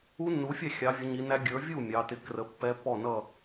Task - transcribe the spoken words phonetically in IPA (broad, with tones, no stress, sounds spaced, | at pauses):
u˦˥ nː u˨˦ fʲ æ˥˨ xʲ ɑ˨˦ vʲ ə˨˦ ɲ i˨˦ n æ˦˥ ɡʲ ə˞˨˦ vʲ u˥˨ mʲ ɑ˨˦ t ɪ˦˥ k r ə˨˦ pː ɛ˦˥ pː ɔ˥˨ n ʌ˥˨